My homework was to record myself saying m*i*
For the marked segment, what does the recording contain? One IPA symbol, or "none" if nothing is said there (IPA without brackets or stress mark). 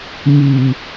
i